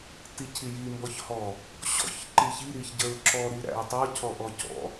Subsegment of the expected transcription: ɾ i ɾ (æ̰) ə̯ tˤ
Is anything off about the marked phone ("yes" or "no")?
no